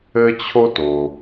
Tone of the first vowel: high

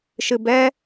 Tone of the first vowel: low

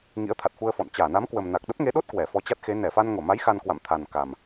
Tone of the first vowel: rising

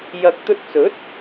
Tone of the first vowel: low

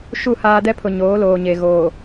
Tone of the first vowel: falling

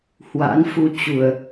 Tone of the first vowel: rising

